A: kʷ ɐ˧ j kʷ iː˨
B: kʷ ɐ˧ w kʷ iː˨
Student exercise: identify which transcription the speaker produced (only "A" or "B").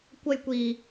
A